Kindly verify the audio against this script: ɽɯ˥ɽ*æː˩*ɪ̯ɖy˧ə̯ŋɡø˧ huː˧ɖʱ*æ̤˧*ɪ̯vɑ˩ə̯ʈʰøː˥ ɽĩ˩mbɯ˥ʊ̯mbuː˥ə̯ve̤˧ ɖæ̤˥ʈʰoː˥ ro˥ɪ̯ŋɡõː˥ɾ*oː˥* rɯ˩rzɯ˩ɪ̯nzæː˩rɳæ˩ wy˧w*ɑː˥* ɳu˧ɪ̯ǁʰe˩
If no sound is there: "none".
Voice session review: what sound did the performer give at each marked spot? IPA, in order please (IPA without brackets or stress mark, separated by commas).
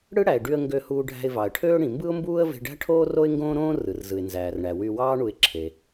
æ˩, æ̤˧, õː˥, ɑː˥